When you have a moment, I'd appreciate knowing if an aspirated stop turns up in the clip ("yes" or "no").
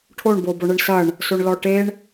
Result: yes